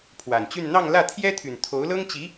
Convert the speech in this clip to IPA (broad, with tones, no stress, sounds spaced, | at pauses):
pʰ w a˨˩ n t͡ɕ y˥˧ n n̪ ɑ˥˧ ŋ l ä˥˩ t̪ʰ j ɛ˥ t̪ʰ y˨˩ n t̪ʰ o˧˥ ʊ̯ l ɤ˥ ŋ t͡ɕ i˧˥